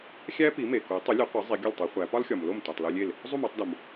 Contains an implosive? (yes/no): no